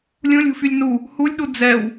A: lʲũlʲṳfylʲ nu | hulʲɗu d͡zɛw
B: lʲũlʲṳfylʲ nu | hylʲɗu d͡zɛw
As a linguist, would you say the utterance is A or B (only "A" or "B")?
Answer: A